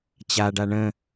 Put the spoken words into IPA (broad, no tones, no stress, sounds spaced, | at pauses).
t͡ɕ a ɖ a ɳ ə̃